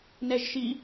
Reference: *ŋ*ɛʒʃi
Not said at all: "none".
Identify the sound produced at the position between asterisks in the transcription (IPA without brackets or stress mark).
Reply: n